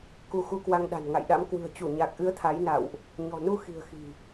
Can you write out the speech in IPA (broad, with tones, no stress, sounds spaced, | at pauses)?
k u˧ x u˧ k w a˧ ŋ ɗ a̤˨˩ n ŋ a̰˧˨ j ɗ a̰˧˥ m k w ɨ̤˨˩ ə̯ t͡ɕ u˧˩ ɲ a˨˩ k̚ ʔ ɨ˨˦ ə̯ t̪ʰ a˨˦ j n a̰˧˨ w ʔ | ɲ ɔ̤˨˩ n u˧ x i̤˨˩ ə̯ x i̤˨˩